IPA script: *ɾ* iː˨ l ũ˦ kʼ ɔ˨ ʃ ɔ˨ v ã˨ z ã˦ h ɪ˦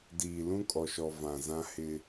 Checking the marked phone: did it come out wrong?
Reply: yes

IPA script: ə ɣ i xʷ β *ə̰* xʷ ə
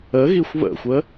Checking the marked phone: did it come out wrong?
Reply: no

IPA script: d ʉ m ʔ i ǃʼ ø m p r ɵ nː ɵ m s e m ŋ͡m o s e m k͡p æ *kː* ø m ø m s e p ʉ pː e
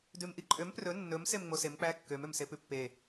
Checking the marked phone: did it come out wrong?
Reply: no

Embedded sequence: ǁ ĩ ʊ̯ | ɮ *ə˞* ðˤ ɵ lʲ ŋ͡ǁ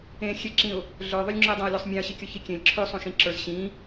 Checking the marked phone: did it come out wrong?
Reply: no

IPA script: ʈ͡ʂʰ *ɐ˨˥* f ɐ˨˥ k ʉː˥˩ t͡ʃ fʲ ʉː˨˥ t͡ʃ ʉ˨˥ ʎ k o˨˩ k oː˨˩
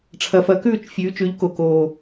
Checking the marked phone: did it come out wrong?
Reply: no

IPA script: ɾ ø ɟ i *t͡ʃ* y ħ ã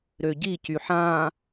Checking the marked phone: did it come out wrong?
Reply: yes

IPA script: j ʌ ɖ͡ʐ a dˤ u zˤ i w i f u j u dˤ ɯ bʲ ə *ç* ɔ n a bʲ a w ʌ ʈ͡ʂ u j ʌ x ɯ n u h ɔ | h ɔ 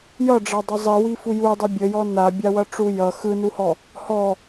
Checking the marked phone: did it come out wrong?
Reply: yes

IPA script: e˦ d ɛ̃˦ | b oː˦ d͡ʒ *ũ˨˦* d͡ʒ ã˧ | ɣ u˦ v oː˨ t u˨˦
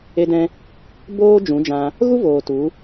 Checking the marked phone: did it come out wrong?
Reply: no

